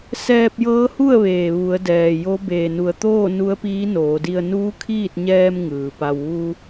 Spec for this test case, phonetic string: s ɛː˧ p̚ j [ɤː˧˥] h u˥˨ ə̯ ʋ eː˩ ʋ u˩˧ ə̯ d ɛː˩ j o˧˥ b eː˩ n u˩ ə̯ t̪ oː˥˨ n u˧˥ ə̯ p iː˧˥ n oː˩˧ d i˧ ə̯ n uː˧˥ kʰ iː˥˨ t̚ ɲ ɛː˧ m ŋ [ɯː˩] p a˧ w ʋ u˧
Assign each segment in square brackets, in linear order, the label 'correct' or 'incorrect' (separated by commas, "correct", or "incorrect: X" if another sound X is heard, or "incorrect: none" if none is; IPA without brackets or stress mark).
correct, correct